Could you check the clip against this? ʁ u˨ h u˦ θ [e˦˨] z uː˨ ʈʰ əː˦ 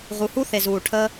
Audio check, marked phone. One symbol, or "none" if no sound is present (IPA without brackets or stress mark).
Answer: e˨